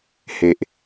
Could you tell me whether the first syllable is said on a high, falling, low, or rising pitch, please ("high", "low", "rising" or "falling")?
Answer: low